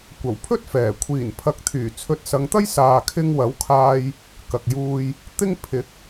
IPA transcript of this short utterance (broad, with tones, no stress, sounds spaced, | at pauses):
kʷ ɐ˨˩ w pʰ ɵ˥ t̚ f ɛː˨˩ kʷʰ iː˨˩ n pʰ ɐ˨ k̚ t̪ʰ yː˨˩ t͡sʰ ɵ˨˥ t̚ s ɐ˨˧ ŋ t̪ ɐ˥ j s aː˨ kʰ ɪ˧ ŋ w ɐ˨˥ w kʰ aː˧ j | k ɐ˨ k̚ j uː˧ j | t̪ ɪ˥ ŋ pʰ ɪ˨˥ k̚